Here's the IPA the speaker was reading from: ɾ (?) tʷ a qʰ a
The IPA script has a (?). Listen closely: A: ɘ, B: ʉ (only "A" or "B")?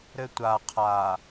A